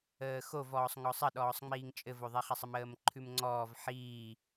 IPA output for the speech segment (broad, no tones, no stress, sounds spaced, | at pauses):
əː x o v ɔː sˤ ŋ ɔ sˤ ə ɗ ɔː sˤ ŋ͡m iː ŋ t͡ʃʼ ɘ v o ðˤ i χ a sˤ ə m əː m ǃʰ ʉ m ŋ͡ǀ ɔː v ħ iː